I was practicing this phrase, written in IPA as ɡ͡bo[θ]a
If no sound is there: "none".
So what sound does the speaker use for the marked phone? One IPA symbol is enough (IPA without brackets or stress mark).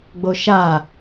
ʃ